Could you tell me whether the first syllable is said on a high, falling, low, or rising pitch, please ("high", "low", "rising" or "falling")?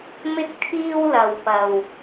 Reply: high